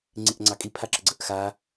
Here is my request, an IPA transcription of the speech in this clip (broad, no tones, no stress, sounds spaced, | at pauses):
ŋ͡ǀ i ʔ ŋ͡ǀ ɑ kʼ i pʰ a ǁ ə ɡ͡ǀ ə ʔ x a